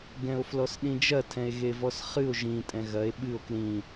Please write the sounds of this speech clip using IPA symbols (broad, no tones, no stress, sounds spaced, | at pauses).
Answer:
ɡ ɛ̃ o̯ f l ɔ s ɗ ĩ d͡ʒ ɐ tʰ ɛ̃ e̯ ɣ e v ɔ s χ ɨ o̯ ʒ ĩ tʼ ɛ̃ ɣ ɐ e̯ ɓ ɨ o̯ k l ĩ